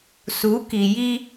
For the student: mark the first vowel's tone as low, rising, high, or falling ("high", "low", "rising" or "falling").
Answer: rising